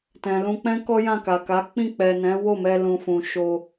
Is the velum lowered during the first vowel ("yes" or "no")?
yes